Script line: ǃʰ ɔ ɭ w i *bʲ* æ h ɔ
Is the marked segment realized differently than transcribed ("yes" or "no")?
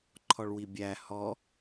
no